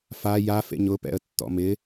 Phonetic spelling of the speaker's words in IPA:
f a j a f ḛ ɲ ʊ p ɛ̰ ə̯ tː ɔ̰ m ɪ

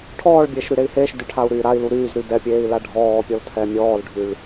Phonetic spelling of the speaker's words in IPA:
ʈʰ ɔː ɭ bʲ eː ʃ ɾ y ɾ e i̯ h eː ʃ d y ʈʰ a u̯ ɾ yː ɾ a i̯ l u ɾ yː z ɾ y d ɛ pʲ eː i̯ l a ɖʱ ɔː pʲ ɔ l tʰ ɛ mʲ ɔː l ɖʱ y ɭ

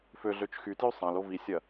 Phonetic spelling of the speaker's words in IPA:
f ø ɮ ø t͡ʃ x y t j y sˤ ã l o v i sʲ ɐ

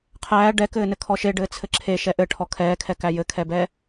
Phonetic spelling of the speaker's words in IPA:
qʰ æː ɖ ɛ k ɘː n ɘ kʰ ɔ ʃ e ɖ ɘː t͡sʰ ɘ ǁʰ e ʃ ɛ ʔ ɘ ʈʰ ɔ kʰ ɛː kʰ ɛ k æ j ɘ kʰ ɛ b ɛ

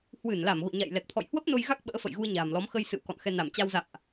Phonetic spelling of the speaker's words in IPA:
h w ɨ˧˩ n l a˧˩ m ɣ o̰˧˨ ɲ a̰˧˨ j l ɛ˨˩ k̚ t̪ʰ ɔ̰˧˨ j h w ə˦˥ p̚ n o˧ j ɣ a˦˥ k̚ ɓ ə̰ː˧˥ f ə̰˧˨ j ɣ u˧ ə̯ ɲ a̤ː˨˩ m l ɔ˨˦ m x ə˧ j s ɨ̰˧˨ w k ɔ̰˧˨ n x ɛ˧ n a˧˩ m t͡ɕ a˧ w z a̰˧˨ m ʔ

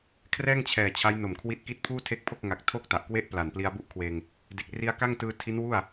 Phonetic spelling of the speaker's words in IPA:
kʰ r ɛː˥˩ ŋ t͡ɕʰ ɛː˨˩ t͡ɕʰ a˦˥ j n o˨˩ m kʰ w i˦˥ t̚ k i˥˩ t̚ pʰ uː˥˩ tʰ e˦˥ k̚ pʰ o˥˩ k̚ ŋ a˨˩ k̚ tʰ o˥˩ k̚ t a˨˩ ʔ k w e˥˩ ʔ p l a˨˩ n p l i˧ a̯ b u˥˩ ʔ kʰ w eː˧ ŋ | d e˨˩ k̚ r i˧ a̯ k a˥˩ ŋ t ɯː˧ tʰ i˦˥ n w u˥˩ a̯

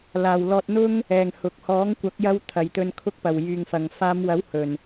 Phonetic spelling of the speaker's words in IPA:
l aː˨ w l ɔː˧ t̚ n̪ ʊ˥ ŋ | ɛː˨ ŋ h ʊ˨ k̚ h ɔː˨˥ ŋ kʷ ɐ˨˥ k̚ j ɐ˧ w t̪ʰ ɐ˨ j t̪ ɵ˧ n kʰ ʊ˧ k̚ p ɐ˨˩ w j yː˨ ŋ f ɐ˨˩ ŋ f aː˨˧ m w ɐ˨˥ w h ɵ˨˩ n

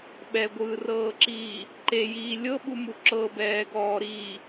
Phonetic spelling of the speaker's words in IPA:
ɓ ɛ ɡʷ ɯː r ɤː ǁ iː | ǃ e j iː lʲ ɤ ɓ u m u ǁ ɤ b ɛː ɡ ɔː ɾ iː

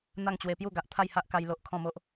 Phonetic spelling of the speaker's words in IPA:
n̪ a˥˧ ŋ t͡ɕ w e˧ p j u˥˧ ɡ a˨ ʔ t̪ʰ a˥˧ j h a˦ ʔ k a˧ j l o˦ ʔ kʰ ɔ̃˥˧ m o˦ ʔ

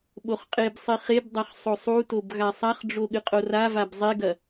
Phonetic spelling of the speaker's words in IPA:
ɓ o χ qʼ e b sˤ i χ e b dˤ a χ sˤ o sˤ u t o b ɣ a sˤ a χ ɖ͡ʐ o ɠ ɨ qʼ o r a v a b zˤ e ɡ ɐ

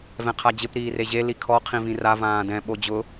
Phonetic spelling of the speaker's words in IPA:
v ɛ̃ qʰ a d͡ʑ ɪ p ɾ iː r e ʑ e l i kʰ ɔ qʰ ĩ v ĩ r a v ãː d ɛ̃ ɓ o d͡ʑ ʊ

